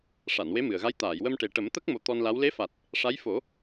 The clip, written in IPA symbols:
ʂ a˨˩˨ n w e˧˥ m ɨ˨˩ ə̯ ɣ a˧˥ j t̪ aː˨˩˨ j w ə˧ m ʈ e˨˩ ʈ ə˨˩˦ m t̪ ə˦˥ k̚ m o˧ t̪ ɔ˧ n l a˧˥ w l e˧˥ f a˨˩ t̚ | ʂ a˧˥ j f o˨˩˦

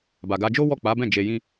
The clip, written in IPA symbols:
b a˨ ɡ a˧ d͡ʒ o˦ w ɔ˦˨ k͡p a˨˦ b ɛ̃˦˨ d͡ʒ e˧ j ĩ˦

